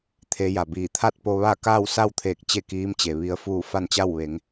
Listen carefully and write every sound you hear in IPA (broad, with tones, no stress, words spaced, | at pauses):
t̪ʰe˧˥ja˩biː˧˩ t̪ʰa˥˨t̚po˧ʋa˥˨ kaː˥˨wsa˥˨wt̪ʰeː˧˩k̚ t͡ɕe˥˨kiː˧˥mt͡ɕe˩ ʋi˧˥ə̯fuː˥˨ fa˥˨nt͡ɕa˥˨w ʋe˩˧ŋ